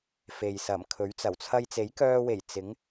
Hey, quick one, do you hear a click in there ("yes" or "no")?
no